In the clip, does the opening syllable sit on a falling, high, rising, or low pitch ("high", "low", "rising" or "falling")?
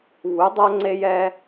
rising